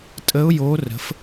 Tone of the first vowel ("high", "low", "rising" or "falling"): rising